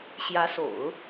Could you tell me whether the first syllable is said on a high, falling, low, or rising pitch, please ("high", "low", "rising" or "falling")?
rising